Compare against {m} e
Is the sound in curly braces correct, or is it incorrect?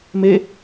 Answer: correct